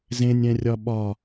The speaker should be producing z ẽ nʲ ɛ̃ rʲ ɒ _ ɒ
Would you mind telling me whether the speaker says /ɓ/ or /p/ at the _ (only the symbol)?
ɓ